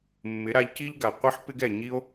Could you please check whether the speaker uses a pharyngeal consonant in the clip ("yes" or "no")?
yes